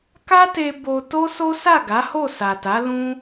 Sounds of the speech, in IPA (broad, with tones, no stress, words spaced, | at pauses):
ka˦te˧ bo˧ to˦so˦ sa˦˨ɡa˨˦ho˦˨ sa˨ta˨˦ lũ˦